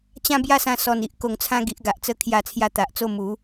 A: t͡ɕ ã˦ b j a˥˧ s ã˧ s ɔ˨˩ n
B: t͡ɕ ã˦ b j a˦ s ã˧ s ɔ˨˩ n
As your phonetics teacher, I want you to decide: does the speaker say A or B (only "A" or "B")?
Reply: A